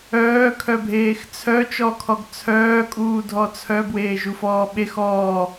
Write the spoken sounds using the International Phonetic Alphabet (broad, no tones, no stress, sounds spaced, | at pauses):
œː kʰ œ bʱ eː x t͡sʰ œ t͡ʃ ɔ kʰ ɔ ɡ t͡sʰ œː kʼ uː dʱ ɔ t͡sʰ œ b w eː ʒ u f ɔː ɓ e x ɔː